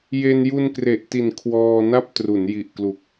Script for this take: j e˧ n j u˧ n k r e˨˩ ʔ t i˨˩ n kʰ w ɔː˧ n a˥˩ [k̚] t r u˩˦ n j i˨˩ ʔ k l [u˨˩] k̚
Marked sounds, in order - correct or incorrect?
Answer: incorrect, correct

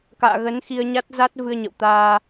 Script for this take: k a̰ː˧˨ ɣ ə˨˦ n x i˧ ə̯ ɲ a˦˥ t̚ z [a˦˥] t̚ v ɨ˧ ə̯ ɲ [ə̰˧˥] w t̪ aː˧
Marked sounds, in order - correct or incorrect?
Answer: correct, incorrect

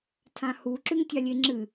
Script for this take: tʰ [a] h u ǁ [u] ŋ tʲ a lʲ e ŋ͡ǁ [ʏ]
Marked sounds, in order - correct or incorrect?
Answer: incorrect, incorrect, incorrect

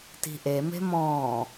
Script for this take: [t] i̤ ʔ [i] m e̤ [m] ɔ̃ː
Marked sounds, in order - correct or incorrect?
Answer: correct, incorrect, correct

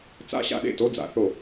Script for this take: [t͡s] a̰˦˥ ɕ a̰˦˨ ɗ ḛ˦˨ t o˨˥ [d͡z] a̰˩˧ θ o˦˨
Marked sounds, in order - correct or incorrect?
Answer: correct, correct

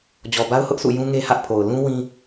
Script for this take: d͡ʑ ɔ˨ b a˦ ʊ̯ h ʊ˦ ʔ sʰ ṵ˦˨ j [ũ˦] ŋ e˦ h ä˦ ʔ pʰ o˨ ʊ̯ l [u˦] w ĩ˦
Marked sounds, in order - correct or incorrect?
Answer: correct, incorrect

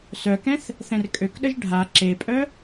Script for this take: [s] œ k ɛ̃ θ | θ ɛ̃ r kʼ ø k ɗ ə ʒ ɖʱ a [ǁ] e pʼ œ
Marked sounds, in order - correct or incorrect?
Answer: correct, correct

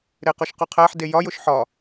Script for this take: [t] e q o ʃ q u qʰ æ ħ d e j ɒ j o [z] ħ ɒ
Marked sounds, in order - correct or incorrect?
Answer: incorrect, incorrect

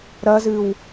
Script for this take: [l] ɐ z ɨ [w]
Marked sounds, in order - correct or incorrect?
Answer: incorrect, correct

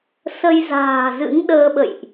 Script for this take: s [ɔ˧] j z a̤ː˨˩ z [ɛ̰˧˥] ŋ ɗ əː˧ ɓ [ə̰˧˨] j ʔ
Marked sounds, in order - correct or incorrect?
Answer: incorrect, incorrect, correct

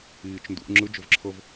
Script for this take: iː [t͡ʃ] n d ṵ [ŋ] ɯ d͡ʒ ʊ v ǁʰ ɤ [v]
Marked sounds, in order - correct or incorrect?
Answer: correct, incorrect, correct

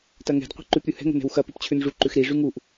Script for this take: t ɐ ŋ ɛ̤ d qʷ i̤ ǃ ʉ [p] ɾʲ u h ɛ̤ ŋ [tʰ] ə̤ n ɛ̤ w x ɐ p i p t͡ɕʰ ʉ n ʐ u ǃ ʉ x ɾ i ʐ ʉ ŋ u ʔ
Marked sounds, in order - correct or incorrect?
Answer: correct, incorrect

